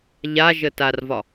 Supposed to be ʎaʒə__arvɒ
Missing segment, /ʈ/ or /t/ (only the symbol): t